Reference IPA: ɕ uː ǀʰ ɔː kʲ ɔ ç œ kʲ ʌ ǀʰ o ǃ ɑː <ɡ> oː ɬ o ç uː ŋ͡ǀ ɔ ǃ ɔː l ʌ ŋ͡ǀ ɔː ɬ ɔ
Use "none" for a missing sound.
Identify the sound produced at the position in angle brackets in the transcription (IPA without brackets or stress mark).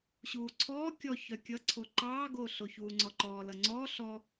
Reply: ɡ